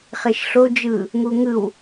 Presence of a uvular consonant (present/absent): present